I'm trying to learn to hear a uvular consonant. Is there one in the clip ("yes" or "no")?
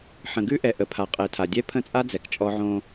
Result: yes